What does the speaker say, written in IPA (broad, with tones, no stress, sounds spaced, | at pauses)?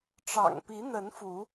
ʈ͡ʂ ɑ̰˨˩ ŋ p i˨˦ n̪ ə˨˦ n f u˨˦